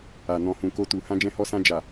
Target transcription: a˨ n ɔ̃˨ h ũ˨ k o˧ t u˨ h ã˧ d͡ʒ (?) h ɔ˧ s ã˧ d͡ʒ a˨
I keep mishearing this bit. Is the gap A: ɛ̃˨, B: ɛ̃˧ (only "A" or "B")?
B